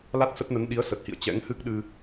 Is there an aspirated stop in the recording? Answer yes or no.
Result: no